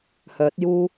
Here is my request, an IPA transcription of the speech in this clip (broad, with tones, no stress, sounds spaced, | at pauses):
h œː˨˥ t̚ j uː˥